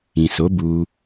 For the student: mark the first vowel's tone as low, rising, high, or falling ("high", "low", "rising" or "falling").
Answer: low